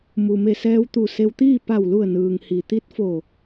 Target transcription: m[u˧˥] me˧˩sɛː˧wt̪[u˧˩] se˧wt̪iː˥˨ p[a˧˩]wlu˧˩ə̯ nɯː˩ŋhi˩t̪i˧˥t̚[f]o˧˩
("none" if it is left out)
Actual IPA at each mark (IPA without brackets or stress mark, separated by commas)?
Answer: u˩, u˧˩, a˧˩, f